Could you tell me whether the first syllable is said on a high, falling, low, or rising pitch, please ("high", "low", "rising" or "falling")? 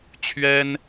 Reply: high